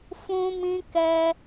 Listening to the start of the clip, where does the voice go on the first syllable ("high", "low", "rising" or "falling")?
high